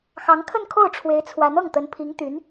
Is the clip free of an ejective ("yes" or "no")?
yes